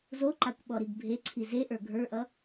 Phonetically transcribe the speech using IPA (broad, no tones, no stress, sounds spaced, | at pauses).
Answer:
z o ǃ a kʷ ɓ ɔ ɾ i ɡ bʱ e ǀʰ i z e ʔ ə˞ ɡʱ ə˞ ʔ ʌ